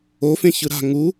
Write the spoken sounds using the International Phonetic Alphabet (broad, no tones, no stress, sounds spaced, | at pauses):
o f ẽ ç ɯ ɾ a̤ ŋ u